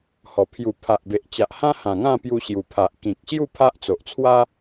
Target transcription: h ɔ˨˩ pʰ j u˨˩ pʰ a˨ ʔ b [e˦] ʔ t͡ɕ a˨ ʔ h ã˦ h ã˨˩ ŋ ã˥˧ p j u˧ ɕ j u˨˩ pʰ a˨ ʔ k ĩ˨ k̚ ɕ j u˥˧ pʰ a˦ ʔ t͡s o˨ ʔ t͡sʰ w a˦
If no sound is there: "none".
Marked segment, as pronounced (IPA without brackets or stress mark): e˨